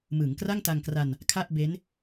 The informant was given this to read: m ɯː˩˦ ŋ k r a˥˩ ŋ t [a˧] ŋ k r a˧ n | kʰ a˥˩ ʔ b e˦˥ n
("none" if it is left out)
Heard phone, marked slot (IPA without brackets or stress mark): a˧